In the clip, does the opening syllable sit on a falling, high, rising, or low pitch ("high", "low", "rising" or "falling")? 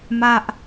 high